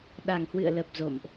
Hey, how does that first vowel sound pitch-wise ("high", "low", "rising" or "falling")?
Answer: low